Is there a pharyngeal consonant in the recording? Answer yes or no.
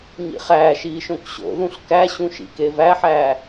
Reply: yes